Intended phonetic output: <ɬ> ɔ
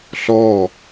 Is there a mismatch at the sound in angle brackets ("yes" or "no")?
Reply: no